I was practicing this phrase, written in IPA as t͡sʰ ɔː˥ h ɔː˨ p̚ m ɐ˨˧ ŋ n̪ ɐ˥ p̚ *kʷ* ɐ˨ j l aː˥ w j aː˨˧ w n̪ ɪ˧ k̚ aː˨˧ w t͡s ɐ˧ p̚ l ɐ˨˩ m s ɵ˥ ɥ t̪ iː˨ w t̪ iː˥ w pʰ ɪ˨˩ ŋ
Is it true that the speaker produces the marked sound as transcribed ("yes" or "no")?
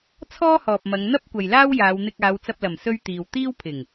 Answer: yes